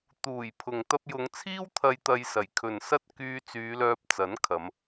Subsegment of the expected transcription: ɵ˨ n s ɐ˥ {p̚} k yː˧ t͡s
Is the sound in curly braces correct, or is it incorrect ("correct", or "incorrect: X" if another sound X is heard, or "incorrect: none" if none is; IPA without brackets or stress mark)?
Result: incorrect: t̚